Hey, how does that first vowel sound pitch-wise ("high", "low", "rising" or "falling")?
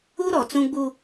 high